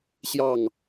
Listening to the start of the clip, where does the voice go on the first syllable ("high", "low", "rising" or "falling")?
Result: falling